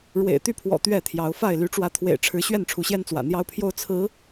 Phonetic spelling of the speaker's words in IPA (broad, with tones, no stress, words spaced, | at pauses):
ɻwḛ˨˩ɪ̯t̪y˥˨pʰwɔ̰˨˩ t̪ɥɛ˥˨t̪ʰjɑ˨˦ʊ̯fa˥˨ɪ̯ ly˨˦ʈ͡ʂwä˨˦t̪ʰwḛ˨˩ɪ̯ʈ͡ʂʰɻ̩˨˦ ɕɥɛ˥˨nʈ͡ʂʰu˨˦ɕjɛ˦nt͡swä̰˨˩ n̪jɑ˦ʊ̯pʰjo˦ʊ̯ t͡sʰɹ̩˨˦